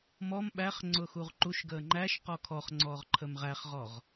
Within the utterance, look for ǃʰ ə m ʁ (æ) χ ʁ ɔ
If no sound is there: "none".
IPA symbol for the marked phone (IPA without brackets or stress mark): æ